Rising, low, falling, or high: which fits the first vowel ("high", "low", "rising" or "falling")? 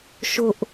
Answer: high